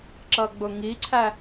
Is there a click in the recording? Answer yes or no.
yes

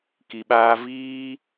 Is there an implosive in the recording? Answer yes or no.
yes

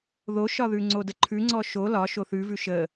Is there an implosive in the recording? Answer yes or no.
no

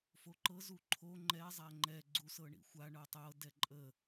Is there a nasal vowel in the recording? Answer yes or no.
no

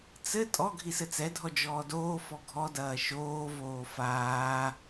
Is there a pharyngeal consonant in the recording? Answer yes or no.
no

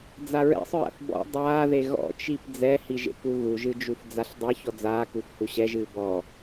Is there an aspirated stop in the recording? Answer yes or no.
no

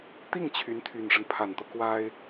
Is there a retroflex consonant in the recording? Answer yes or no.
yes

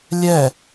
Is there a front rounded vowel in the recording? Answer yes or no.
no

